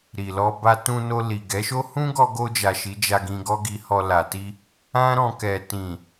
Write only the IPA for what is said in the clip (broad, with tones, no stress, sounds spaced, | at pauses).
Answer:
ɾ i˨ l ɔ˧ b a˧ t ũ˧ n o˧ l i˨ ɡ ɛ˨˦ ʃ o˦ h ũ˦ ɡ ɔ˧ ɡ o˧ d͡ʒ a˨ ʃ i˨˦ d͡ʒ a˧ ɡ ĩ˧ ɡ ɔ˦ ɡ i˧ h ɔ˧ l a˨ t i˧ | ã˦ ɾ ɔ̃˧ k ɛ˨ t ĩ˨